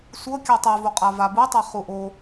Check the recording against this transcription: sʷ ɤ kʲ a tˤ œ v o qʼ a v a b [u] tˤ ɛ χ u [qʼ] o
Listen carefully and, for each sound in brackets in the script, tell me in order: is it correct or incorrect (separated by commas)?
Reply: correct, incorrect